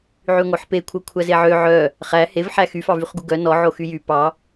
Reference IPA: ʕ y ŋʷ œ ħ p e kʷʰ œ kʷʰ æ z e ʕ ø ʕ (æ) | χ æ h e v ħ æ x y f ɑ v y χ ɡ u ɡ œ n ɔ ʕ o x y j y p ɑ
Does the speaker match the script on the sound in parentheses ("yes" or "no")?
no